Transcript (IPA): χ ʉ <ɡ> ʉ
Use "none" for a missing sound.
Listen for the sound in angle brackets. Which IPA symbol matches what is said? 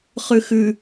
x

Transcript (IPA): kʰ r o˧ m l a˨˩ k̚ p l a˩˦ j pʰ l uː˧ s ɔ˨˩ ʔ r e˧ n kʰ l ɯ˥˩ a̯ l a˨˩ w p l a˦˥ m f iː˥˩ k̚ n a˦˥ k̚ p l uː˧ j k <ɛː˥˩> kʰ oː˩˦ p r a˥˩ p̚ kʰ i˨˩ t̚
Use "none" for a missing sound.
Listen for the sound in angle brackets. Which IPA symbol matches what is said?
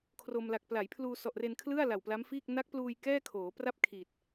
ɛː˥˩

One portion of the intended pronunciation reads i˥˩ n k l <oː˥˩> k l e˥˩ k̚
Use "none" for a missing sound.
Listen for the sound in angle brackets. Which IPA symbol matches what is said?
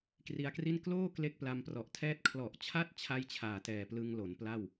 oː˥˩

